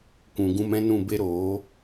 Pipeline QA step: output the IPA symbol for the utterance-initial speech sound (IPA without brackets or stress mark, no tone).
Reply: kʷ